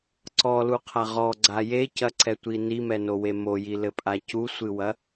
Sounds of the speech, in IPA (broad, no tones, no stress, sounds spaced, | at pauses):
ǀ ɔ l u qʰ a ʁ ɔ ɡ͡ǀ a j e c ɐ ǀ ɛ tʷ i n i m ɛ n o w e m o j i l ɘ pʼ a c u sʷ ɨ w ɐ